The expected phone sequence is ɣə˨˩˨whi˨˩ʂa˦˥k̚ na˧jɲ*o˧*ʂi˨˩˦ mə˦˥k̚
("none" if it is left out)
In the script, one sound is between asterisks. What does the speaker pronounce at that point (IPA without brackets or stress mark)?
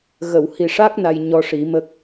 ɔ˧